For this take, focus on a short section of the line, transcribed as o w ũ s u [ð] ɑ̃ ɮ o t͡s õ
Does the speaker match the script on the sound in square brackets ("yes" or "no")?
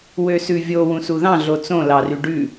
yes